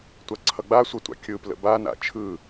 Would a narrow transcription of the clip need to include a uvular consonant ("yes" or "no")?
no